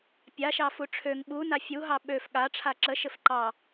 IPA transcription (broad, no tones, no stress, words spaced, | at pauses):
pʲaʃɑ fuʈ͡ʂʰøŋ ɓuna fʲuɦɑ ɓøf ɠa ʈ͡ʂʰaǁəʃɘf ǃɑ